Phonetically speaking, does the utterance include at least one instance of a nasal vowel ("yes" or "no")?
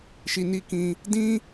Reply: yes